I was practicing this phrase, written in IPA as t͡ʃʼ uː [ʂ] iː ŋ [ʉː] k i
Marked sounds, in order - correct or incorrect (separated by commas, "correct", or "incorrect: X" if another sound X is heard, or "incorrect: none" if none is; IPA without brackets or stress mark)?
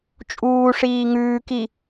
correct, correct